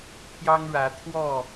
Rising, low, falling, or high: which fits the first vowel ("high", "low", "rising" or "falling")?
high